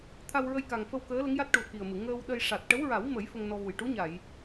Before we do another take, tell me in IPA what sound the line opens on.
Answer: t̪ʰ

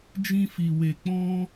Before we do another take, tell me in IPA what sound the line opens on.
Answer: d͡ʒ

